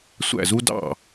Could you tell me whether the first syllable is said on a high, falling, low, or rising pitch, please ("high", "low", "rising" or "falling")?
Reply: falling